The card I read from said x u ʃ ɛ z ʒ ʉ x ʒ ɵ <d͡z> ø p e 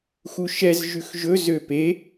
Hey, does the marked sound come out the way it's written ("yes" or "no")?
no